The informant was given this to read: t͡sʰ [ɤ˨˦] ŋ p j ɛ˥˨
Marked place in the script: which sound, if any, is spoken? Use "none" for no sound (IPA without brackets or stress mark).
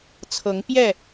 ɤ˨˦